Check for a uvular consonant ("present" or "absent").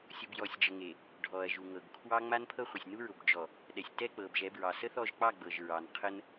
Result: present